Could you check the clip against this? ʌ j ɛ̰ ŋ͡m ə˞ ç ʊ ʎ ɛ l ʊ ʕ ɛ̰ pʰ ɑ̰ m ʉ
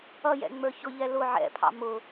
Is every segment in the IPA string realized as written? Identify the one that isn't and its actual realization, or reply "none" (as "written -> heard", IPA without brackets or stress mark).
ʉ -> ʊ